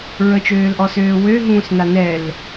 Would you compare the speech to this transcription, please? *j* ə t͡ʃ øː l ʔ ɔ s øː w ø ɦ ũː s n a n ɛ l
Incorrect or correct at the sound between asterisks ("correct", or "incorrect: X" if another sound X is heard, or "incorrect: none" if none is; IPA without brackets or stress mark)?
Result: incorrect: ɹ